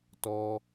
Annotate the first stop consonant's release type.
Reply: plain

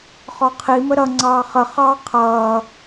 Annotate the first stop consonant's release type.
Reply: aspirated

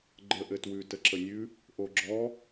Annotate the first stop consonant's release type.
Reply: click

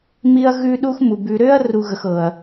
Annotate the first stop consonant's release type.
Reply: implosive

